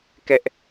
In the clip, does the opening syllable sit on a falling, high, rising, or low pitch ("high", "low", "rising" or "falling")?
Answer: high